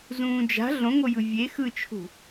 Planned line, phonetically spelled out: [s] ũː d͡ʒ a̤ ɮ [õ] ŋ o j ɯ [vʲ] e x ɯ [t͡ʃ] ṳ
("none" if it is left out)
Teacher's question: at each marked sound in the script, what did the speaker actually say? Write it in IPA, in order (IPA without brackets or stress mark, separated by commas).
z, õ, vʲ, t͡ʃʰ